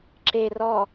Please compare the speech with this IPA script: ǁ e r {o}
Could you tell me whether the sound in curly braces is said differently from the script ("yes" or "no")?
yes